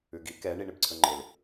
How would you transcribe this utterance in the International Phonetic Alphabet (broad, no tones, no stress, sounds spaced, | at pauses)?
ʉ ɡ i k ɛ ɳ i ɳ ɪ b ǀʰ ɵ ŋ͡ǃ ɪ l